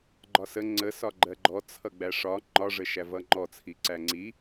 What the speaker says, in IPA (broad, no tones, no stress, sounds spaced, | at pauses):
ɡ͡ǃ ɒ s ə ŋ͡ǀ ə s ɒ ɡ͡ǃ ɜ ɡ͡ǃ ɔ t͡sʰ ʌ ɡ͡b æ ʂ ɒ ŋ͡ǃ ɒ ʐ ə ʃ æ v ʌ ŋ͡ǃ ɔ t͡sʰ i ǀ æ ŋ͡ǀ i